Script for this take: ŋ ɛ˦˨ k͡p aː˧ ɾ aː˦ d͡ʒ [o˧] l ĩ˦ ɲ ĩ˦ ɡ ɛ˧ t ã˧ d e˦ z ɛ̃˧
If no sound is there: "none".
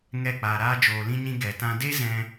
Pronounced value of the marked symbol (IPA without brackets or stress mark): oː˧